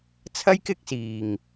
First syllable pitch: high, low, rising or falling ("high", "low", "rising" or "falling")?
high